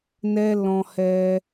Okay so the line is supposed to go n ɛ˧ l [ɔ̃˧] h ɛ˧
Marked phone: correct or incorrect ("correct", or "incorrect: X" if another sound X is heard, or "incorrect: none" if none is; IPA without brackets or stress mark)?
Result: correct